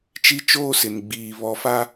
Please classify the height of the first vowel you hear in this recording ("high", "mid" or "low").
high